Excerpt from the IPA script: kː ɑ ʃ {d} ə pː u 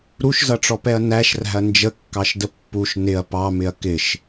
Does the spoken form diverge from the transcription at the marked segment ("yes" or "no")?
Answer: no